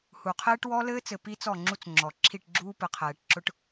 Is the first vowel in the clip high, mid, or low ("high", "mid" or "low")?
high